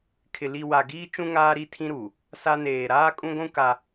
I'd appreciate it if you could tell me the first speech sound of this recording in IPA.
kʰ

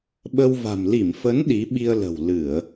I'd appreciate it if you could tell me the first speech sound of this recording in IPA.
ɓ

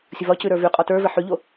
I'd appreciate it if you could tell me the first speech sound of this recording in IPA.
sʲ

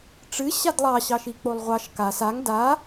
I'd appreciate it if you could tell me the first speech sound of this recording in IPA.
ʈ͡ʂ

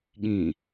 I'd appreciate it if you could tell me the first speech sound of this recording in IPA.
ɠ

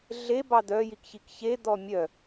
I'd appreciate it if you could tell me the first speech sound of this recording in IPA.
ɮ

